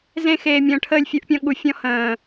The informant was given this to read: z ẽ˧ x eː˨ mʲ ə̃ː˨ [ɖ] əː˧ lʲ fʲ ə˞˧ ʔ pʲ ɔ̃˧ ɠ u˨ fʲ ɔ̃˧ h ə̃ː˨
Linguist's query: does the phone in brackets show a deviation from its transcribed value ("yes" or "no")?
yes